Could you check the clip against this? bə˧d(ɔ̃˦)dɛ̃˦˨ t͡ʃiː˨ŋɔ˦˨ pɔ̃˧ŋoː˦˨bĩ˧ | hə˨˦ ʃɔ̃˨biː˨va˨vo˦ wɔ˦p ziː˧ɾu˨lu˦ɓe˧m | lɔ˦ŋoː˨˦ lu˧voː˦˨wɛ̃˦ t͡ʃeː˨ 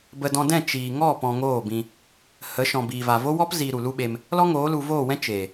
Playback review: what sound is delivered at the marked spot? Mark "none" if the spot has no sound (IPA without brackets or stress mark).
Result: ɔ̃˧